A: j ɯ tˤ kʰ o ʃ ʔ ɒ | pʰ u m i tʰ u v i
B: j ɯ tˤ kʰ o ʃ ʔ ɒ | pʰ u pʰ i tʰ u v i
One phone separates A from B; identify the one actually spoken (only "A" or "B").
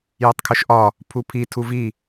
B